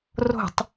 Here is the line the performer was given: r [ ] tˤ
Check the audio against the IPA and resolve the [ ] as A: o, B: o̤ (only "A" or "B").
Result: B